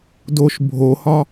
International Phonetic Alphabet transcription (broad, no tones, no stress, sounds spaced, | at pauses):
d o ʃ bʱ o h ɒ